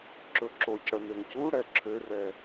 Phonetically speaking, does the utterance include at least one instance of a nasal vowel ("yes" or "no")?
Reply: no